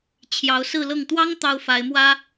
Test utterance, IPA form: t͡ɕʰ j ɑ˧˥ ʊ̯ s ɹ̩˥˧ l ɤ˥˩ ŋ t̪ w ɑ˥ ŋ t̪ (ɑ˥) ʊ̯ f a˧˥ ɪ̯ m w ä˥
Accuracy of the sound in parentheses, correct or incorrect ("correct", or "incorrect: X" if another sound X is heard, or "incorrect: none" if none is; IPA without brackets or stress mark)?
correct